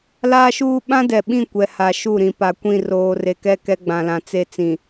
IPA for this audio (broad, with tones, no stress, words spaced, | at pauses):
laː˦ʃuː˦ ɓã˦dɛ˨ɓĩ˦˨ kʷɛ˨ha˨ʃu˦˨ɾĩ˨ pa˨kʷĩ˦˨ roː˨re˨kɛ˦˨ kɛ˦ɡ͡bã˨lã˨ t͡se˦t͡sĩ˨